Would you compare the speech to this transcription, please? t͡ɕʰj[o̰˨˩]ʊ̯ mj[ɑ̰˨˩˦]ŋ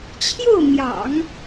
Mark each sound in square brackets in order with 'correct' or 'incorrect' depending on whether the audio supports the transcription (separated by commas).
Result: incorrect, correct